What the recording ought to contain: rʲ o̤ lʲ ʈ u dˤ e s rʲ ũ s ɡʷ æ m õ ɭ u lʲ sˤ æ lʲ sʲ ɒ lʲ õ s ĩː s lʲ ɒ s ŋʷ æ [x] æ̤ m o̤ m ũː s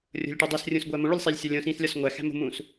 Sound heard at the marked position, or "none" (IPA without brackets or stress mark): x